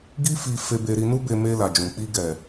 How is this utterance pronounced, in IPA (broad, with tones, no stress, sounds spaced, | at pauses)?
ɡ i˦ f i˧ f e˧ b e˧ ɾ i˧ n u˦ b e˧ m e˧ l a˨ d͡ʒ ũ˨ k͡p i˧ ɡ ɛ˨